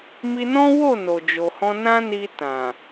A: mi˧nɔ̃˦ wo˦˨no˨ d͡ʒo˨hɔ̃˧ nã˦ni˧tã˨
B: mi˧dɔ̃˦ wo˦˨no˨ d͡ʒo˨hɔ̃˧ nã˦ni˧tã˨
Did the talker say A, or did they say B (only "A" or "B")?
A